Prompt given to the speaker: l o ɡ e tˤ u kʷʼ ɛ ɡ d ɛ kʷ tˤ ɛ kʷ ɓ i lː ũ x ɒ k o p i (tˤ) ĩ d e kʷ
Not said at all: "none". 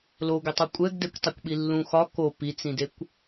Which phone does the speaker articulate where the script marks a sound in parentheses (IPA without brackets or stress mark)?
t͡s